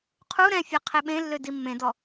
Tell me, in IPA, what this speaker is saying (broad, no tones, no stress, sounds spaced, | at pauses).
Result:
qʰ u ɾ ɛ̃ fʲ ɛ qʰ e ɓ ẽ lː ø d i mː ẽ d ɔ